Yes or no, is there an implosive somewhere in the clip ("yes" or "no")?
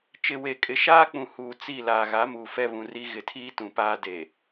no